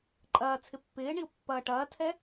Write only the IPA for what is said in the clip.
ǃʼɐːt͡sʰɪ pːɪːɳiʊ̯ pːɐːʈɐːtʰɛ

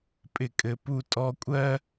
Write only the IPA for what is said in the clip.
pʼɪ˨kʼɘ˨ pu˨ tʼɔ˨kʷʼɜ˦

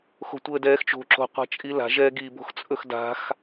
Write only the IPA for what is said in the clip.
xo̤tʷəːdɛːxt͡ʃo̤ ǁo̤ qʷa̤t͡ʃʼila̤ ʒɛːɡi bo̤xt͡sʼɵxda̤x

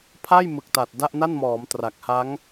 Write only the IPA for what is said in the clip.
pʰa˥˩jmɯ˨˩k̚ta˨˩t̚ da˥˩ʔna˥˩nmɔː˩˦m tra˨˩k̚ha˦˥ŋ

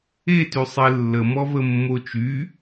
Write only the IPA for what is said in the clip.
etysˤe lːəmɔvə mːot͡ʃy

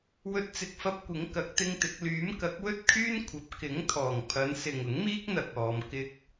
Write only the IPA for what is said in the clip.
wɵ˧t̚t͡sɪ˨˥k̚fɐ˧p̚ kʷɪ˨˥ŋ kɐ˨˥k̚t̪ɪ˥ŋt̪ɪ˨˥k̚ lyː˨˥m kɐ˨˥k̚wɵ˥t̚kʰyː˥n kʷʰɐ˨˥p̚ kɪ˨˥ŋ t̪ʰɔː˨˩ŋ pʰɐ˨˧nsɪ˨ŋʊ˨˥ŋmiː˥k̚ n̪ɐ˧k̚ɔː˨˧m kɪ˧k̚

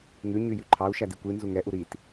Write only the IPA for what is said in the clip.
ŋʉ ɲyjʉǃʰɑu̯ ʃædikʷi nzuŋɛ ʔuɾit

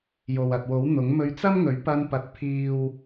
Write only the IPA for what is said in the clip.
jo˨wɐ˨t̚wo˨˥w n̪ʊ˨˥ŋ mɵ˧ɥt͡sɐ˥mŋɵ˨˥ɥ pɐ˧npɐ˨t̚ pʰiː˨w

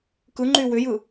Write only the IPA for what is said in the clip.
kɯ ŋ͡ǃywʏjɯ

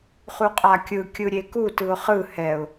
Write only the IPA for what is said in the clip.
χuqʼakʲɯ kʲɯɾʲekutɯʊ̯ χɯ hɛʊ̯

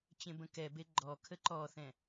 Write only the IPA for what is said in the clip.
t͡ɕẽbə̃kɛbe ɡ͡ǃɔkʰə ǃɔθɛ̃

